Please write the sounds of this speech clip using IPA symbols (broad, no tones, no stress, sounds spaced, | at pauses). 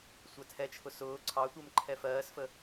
sʷ æ tʰ ɛ t͡ʃʰ ʊ s ʊː ǀʰ ɑ tʷ ɜ m ǃʰ ɛ f ɜː s f ə